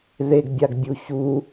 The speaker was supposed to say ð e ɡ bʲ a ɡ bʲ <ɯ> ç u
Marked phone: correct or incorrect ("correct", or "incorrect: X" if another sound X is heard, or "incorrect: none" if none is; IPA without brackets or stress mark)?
incorrect: u